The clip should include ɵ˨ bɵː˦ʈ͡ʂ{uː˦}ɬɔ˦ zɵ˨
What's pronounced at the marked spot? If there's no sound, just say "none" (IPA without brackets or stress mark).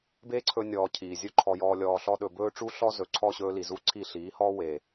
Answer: u˦